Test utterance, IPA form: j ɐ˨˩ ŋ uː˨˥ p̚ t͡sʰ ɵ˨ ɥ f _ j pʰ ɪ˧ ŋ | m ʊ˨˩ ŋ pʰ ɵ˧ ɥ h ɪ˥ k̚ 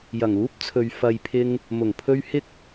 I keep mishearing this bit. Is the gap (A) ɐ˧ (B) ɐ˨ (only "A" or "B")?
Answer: B